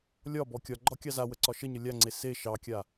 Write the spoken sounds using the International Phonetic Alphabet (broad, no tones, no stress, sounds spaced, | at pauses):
lʲ ɒ b ɔ kʲ ɒ ɡ͡ǃ ɒ kʲ ɑ z a w ə ǀ ɒ ʃ ə ɲ ə lʲ a ŋ͡ǀ e s e ʃ ɑ kʲ a